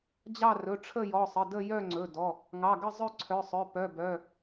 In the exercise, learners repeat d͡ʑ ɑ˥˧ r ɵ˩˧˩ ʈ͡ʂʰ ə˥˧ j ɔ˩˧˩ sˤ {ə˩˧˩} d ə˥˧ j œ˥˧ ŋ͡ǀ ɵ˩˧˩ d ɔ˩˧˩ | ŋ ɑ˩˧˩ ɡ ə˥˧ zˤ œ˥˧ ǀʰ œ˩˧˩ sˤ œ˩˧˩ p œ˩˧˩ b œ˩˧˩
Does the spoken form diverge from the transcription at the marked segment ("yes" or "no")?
no